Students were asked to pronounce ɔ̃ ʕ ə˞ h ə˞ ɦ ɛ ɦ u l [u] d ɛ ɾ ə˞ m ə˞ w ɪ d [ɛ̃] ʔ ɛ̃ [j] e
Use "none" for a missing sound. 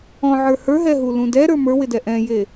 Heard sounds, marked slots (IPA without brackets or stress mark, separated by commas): ũ, ɛ, j